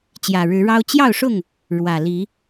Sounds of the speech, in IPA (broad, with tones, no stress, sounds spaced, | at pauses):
t͡ɕ j ä˨˩ ɻ ɻ̩˨˦ ɻ ɑ˦ ʊ̯ t͡ɕ j ɑ˥˨ ʊ̯ ʂ ʊ˥˨ ŋ | ɻ w ä˨˩ l i˨˦